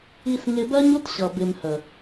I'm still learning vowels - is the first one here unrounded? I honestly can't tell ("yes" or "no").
yes